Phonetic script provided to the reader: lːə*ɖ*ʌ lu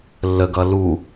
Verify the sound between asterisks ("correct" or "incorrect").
incorrect